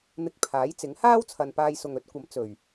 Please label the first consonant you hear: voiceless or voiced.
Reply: voiced